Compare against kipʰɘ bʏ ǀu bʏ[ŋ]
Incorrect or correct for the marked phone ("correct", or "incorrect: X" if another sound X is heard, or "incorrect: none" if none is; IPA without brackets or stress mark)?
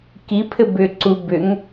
correct